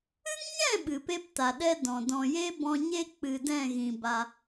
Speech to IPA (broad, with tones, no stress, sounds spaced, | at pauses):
ɨ˦ ŋ ɲ ɛ̃˦˨ ɓ ɨ˨ p e˦ p t a˨ ɗ ɛ˦ d ɔ̃˨ d ɔ̃˨ j e˦ b ɔ̃˧ ɲ e˦ k͡p ɨ˨ d ɛ̃˦˨ ɣ ĩ˨ b a˧